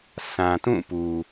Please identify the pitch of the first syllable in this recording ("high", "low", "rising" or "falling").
low